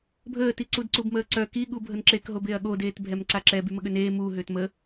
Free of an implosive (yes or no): no